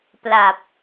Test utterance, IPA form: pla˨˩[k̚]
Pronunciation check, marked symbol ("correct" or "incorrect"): incorrect